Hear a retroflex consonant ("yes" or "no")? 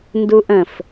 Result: no